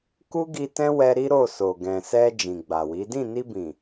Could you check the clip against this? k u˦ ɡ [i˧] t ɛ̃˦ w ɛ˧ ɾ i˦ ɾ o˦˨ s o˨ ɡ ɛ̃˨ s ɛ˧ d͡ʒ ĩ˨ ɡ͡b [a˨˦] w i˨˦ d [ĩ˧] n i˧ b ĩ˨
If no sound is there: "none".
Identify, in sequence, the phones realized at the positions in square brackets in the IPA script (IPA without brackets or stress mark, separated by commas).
i˧, a˨, ĩ˦˨